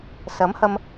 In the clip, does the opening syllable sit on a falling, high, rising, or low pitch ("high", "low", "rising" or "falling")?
rising